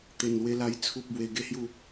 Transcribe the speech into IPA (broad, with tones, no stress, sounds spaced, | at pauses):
t̪ e˨˩ n l w e˧ l a˧ j t͡sʰ u˨ p̚ b w e˨˩ ɡ e˥˧ h j u˥˧